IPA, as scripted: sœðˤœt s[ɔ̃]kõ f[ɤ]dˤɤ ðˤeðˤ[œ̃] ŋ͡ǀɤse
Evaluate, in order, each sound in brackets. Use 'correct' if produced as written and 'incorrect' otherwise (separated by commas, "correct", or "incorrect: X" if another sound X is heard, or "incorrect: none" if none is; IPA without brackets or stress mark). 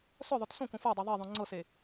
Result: incorrect: õ, incorrect: o, correct